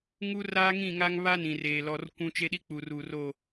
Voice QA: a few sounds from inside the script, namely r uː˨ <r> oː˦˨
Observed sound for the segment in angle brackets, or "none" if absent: r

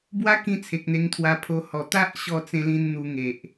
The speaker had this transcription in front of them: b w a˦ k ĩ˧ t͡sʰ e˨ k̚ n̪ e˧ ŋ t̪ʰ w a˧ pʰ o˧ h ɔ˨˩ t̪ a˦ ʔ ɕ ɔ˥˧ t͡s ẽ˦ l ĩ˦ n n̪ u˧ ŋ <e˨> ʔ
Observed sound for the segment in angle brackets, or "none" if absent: e˨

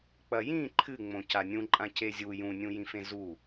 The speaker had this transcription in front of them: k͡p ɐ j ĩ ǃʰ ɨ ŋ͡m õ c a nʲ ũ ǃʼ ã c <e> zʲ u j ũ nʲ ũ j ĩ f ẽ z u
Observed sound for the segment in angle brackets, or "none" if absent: e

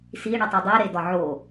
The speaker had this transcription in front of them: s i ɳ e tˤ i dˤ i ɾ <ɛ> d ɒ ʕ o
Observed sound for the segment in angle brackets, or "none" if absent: e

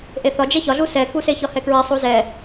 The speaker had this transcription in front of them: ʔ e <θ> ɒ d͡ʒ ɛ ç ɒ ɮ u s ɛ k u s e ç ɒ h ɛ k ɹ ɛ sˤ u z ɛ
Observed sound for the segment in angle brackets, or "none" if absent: θ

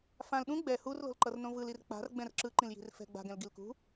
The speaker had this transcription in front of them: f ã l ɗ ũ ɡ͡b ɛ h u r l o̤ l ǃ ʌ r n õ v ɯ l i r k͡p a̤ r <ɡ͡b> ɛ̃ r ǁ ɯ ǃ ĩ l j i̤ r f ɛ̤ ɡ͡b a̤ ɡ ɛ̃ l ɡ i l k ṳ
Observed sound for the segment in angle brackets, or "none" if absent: ɡ͡b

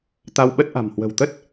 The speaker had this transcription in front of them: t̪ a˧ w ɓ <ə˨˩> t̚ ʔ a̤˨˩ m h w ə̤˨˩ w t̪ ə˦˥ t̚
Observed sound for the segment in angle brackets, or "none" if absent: ə˦˥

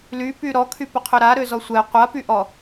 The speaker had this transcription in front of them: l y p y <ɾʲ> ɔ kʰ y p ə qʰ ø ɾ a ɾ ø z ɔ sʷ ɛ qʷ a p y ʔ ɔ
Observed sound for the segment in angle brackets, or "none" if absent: ɾ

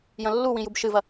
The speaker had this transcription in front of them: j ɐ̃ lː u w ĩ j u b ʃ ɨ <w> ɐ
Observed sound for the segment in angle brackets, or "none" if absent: v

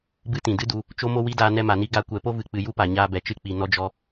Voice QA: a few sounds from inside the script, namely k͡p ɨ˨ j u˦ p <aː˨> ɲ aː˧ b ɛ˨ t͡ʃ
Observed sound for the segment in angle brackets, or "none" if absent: a˨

